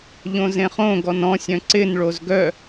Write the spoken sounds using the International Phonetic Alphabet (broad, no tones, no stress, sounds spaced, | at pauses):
ʎ õ z ẽ χ õ ɡ ɔ n ɔ̃ sʲ œ̃ ǀ ɪ n ɭ o z ɡ œ